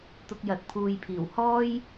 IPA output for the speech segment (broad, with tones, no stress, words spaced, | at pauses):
t̪ʊ˧k̚jɐ˨t̚ pʰuː˨jpʰiː˨˩w hɔː˥j